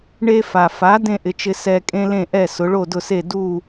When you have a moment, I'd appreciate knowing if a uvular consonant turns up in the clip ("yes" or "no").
no